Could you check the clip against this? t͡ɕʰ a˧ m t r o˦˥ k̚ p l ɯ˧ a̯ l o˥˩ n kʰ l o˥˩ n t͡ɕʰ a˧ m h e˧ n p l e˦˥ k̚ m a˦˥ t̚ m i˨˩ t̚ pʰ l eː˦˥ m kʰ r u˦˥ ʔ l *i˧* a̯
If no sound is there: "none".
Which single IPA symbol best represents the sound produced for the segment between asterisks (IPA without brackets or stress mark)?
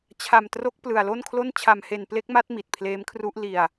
i˧